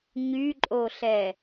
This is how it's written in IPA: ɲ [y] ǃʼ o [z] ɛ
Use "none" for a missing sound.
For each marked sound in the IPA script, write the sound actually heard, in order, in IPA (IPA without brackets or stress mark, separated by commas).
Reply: y, ɬ